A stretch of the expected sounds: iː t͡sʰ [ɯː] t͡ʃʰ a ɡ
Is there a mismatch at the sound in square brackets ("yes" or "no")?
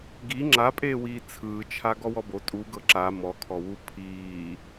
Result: no